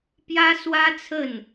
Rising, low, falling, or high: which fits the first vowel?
high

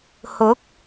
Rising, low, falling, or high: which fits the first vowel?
rising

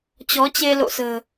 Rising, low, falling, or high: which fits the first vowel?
rising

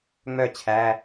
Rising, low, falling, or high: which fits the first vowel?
falling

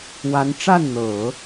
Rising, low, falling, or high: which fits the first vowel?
rising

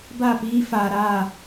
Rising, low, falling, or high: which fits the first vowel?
falling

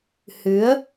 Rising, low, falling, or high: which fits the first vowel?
rising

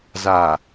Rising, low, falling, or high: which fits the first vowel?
low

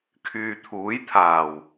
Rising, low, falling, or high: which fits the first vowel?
low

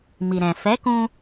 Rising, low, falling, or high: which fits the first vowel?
low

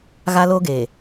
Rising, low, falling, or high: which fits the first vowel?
high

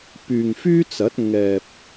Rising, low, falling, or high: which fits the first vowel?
low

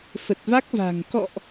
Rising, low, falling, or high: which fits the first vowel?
low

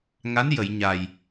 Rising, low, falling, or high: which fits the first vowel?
rising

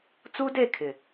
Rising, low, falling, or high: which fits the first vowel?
high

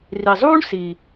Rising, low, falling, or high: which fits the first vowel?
low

